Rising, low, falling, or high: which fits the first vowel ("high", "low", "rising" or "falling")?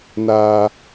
low